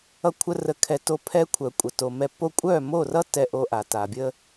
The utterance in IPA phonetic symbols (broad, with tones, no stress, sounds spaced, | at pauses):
ʌ˧ kʷʰ ə˧ r ə˧ kʰ ɛ˧ t o˧ pʰ ɛ˧ kʷʰ œ˨ kʷʼ ə˨ t o˨ m ɛ˧ p o˧ kʷʼ œ˦˨ m o˦˨ r ʌ˦ t ɛ˧ ʔ o˧ ʔ a˨ t a˨ bʲ ə˦